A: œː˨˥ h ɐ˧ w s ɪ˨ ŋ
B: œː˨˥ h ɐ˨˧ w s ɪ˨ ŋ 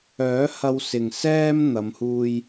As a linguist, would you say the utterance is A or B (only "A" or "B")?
A